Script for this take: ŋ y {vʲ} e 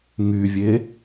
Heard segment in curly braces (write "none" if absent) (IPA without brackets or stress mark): vʲ